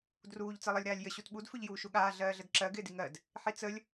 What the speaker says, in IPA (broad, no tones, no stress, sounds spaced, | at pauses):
d r uː ʎ t͡s ɜ lˠ ɜ lʲ ɾ aː lʲ j ə ɕ u t ɓ u d f ɵ ʎ j uː ʃ u ɠ aː ɮ ɜː ɮ ə d ǁ ɜ ɡ ɪː d i ŋ ɜ d | ħ i t͡s ə lʲ